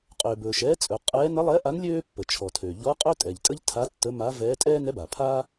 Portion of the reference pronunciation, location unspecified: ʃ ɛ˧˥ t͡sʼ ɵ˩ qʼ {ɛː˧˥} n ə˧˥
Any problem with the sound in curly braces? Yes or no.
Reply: no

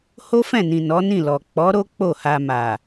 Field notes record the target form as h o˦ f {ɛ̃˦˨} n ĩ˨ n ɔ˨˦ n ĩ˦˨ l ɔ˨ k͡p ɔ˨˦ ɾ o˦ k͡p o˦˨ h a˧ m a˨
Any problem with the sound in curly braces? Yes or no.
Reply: no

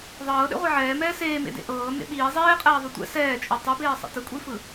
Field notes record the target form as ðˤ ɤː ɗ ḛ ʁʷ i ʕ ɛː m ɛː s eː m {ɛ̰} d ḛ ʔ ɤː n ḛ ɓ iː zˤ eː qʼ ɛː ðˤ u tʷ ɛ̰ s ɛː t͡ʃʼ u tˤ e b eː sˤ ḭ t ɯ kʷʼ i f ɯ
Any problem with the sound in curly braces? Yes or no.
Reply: yes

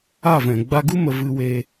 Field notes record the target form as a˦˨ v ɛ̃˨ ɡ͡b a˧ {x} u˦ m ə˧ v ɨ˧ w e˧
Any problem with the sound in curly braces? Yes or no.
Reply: yes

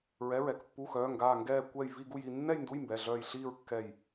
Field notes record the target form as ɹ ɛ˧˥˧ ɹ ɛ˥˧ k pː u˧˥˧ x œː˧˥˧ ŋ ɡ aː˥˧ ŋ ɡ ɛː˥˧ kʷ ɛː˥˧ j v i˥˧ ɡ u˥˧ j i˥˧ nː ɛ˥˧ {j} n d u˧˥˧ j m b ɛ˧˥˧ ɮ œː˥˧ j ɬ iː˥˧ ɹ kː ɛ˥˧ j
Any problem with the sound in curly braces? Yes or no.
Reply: no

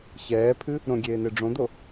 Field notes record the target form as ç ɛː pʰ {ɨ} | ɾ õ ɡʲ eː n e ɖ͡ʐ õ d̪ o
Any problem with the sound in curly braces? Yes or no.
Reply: no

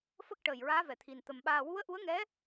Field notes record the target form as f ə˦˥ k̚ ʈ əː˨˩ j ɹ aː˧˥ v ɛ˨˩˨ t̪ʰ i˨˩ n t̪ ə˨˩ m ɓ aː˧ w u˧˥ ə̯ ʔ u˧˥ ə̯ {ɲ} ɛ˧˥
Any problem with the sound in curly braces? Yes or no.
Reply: yes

